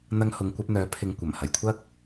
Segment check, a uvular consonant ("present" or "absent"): absent